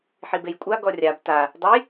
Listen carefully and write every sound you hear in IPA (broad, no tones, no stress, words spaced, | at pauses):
ħibejkʷʼa ɡɔrʲab ta | dˤəj